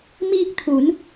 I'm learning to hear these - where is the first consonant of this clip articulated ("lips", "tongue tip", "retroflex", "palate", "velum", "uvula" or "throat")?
lips